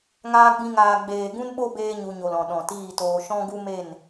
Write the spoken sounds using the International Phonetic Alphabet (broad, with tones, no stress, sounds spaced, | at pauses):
ŋ aː˦ ɡ͡b ĩ˦ ŋ aː˧ ɡ͡b eː˨ ɡ ũ˦ n ɓ o˦ b eː˦ ɲ u˧ ɲ o˨ l ɔ̃˨ ɗ ɔ̃˨ t iː˦˨ t oː˧ ʃ ɔ̃˦ ɡ u˦ m e˦˨ n